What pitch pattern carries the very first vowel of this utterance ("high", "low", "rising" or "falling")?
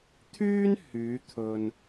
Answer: high